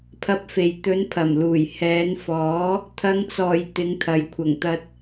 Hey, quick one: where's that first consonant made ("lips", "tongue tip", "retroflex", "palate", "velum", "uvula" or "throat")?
lips